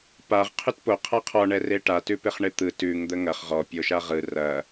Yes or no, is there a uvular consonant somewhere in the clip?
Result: yes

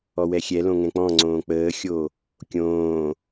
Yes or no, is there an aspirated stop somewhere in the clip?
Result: no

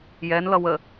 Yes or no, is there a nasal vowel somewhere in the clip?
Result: no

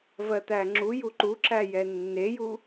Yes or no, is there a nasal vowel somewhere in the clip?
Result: no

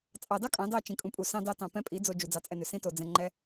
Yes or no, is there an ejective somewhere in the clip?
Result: yes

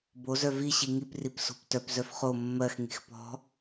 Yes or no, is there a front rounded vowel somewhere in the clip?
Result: yes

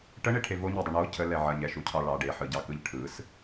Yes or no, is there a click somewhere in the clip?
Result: no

